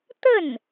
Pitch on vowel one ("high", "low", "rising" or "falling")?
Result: falling